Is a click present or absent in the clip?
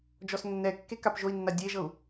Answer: absent